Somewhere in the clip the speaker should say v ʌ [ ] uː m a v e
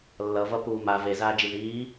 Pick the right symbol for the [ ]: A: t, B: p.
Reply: B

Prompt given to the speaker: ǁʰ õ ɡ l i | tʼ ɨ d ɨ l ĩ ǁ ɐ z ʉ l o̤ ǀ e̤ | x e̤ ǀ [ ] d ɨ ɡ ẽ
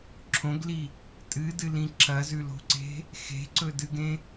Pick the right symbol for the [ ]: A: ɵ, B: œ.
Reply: A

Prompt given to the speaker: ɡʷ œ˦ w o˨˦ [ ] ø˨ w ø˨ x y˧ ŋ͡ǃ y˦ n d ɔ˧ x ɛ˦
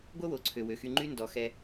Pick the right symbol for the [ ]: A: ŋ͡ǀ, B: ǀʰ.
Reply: B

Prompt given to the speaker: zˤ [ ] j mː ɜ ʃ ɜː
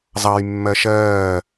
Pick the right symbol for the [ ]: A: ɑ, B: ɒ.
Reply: A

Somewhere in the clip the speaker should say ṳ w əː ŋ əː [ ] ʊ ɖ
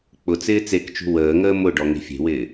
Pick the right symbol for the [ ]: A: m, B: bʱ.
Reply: A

